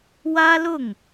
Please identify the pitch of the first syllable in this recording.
high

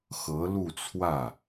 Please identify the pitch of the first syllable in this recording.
rising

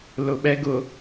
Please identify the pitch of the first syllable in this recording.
low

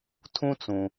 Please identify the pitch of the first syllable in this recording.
high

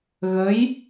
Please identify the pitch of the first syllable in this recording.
rising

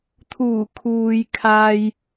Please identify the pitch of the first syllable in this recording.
low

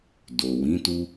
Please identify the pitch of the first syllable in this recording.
low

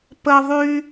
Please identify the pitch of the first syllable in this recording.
high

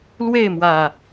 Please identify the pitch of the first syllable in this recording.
falling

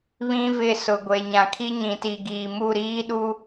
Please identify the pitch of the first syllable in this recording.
high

